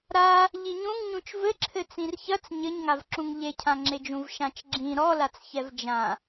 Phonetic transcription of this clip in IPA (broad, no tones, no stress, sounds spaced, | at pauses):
ɾ a | ʎ i ɲ ũ ŋ ɲ ũ t͡ʃ v ɘ ǁʰ ɘ t͡s ĩ r ç ɐ t͡s ɲ ɘ ɲ ŋ a v ǁ ũ ŋ ʎ e cʰ ã ŋ͡ǁ e d͡ʒ ũ v ʃ ã t͡ʃ ɡ͡ǁ ĩ ɾ ɔ l a t͡s ç ɛ v d͡ʒ ã